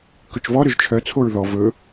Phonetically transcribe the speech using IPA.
k ɵ t͡ʃ v ɔ ɾ ø ʒ t͡ʃʰ œ t͡sʰ o ɹ ð ɔ v ɵ

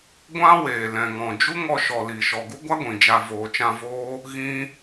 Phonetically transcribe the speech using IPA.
ɡʷ ã˦ w eː˨ l ɛ̃˨ ŋ ɔ̃˨ d͡ʒ u˦ ŋ ɔ˧ ʃ ɔ˨ l iː˨ ʃ ɔ˨ ɡ u˦ ɡʷ a˦ ɡʷ ĩ˨ d͡ʒ a˧ v oː˨ t͡ʃ ã˧ v oː˦ | ɣ ĩ˦

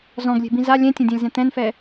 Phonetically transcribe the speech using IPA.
z ɔ̃ ɡ lʲ e̤ b ĩ z a lʲ ɛ̃ tʲ ɛ̃ dʲ ã lʲ z ɛ̃ t̪ ɛ̃ n f ɛ

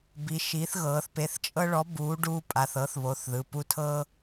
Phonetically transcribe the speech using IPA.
b i˨˥ ʃ i˨˥ θ ɣ ɤː˩˧ θ p e˩˧˩ θ t͡ʃʼ ɤ˦ ɭ ɔ˨˥ b uː˨˥ ɖ uː˦ pʼ a˩˧˩ θ ɤ˨˥ θ β o˩˧˩ θ ð ɯ˩˧˩ p u˦ tʰ ɤ˦

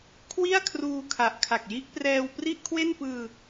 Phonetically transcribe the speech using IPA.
kʰ w i˥˩ a̯ kʰ r uː˧ kʰ a˨˩ ʔ kʰ a˨˩ k̚ j i˦˥ ʔ p r ɛː˧ w p r i˥˩ ʔ kʰ w e˥˩ n p ɯː˧

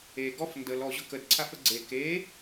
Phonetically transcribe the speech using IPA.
e ɡ ɔ f n d ə l ɔ ʑ ʊ k ə d ǀʰ a f ə ɡ͡ǀ e k e

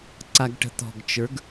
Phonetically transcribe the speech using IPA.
ǀ a ɡ ʈ ə̤ t̪ ɔ̤ ɡ t͡ʃ ə˞ ɡ

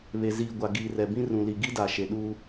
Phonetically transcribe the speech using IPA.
β e˨ z iː˨ ɡʷ a˨ ɡ iː˨ r ɛ˨ b ĩ˦ r ũ˨ l i˨ ɡ i˦ d a˨ ʃ e˨ ɗ uː˦

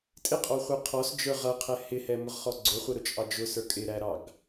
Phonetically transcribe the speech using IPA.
tʼ ɪ qʼ ɔ χʷ ɛ qʰ ɔ s d͡ʒ ə˞ ʁ ʌ qʰ ɛ h ɪ h ɛ m ʊ ʁ χ ɔ ɡ͡ǀ ʊ χʷ ə ɾ ʊ t͡ʃʼ ɑ d͡ʒ ʊ s ə˞ kʼ ɪ ɾ æ ɾ ɑ ɡ

